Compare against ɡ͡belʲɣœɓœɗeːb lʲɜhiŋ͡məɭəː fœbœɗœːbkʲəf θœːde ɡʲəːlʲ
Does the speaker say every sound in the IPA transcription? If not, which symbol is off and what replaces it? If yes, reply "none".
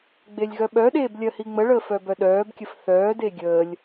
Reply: none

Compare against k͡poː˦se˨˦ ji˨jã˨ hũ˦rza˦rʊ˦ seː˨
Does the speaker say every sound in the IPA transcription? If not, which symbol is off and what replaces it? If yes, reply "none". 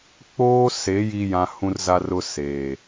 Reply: none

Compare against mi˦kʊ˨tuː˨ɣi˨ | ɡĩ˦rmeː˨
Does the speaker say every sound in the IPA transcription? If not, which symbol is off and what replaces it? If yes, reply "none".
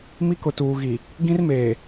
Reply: none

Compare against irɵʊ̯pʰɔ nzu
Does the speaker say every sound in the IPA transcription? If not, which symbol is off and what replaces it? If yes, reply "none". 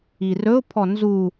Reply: none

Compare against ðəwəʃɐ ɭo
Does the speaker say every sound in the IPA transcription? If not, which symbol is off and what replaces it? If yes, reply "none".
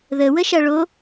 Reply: none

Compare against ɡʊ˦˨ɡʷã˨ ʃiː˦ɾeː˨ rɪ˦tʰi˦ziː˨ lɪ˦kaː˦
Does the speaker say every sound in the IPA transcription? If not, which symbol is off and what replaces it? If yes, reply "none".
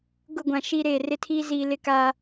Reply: i˦ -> iː˦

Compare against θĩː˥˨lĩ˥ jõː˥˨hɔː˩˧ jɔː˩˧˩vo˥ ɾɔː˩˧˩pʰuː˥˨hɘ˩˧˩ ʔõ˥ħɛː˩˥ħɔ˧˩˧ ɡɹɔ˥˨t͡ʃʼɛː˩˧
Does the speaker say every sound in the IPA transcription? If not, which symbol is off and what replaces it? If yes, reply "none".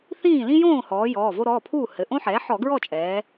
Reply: none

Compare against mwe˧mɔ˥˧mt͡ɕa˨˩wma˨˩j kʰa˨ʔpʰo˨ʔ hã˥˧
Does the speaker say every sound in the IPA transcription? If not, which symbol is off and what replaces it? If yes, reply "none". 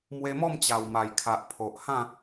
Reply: none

